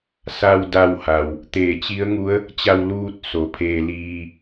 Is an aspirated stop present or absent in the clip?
present